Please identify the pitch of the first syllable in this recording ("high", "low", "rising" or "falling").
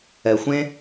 low